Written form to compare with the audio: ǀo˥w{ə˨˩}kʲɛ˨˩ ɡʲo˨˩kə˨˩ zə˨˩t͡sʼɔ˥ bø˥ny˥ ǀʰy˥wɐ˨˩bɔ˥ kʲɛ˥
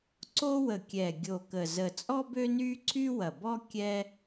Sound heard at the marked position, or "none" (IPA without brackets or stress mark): ə˨˩